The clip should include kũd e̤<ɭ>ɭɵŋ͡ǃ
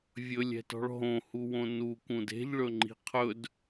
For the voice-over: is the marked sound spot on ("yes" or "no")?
no